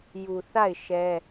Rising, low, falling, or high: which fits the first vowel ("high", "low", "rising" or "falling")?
low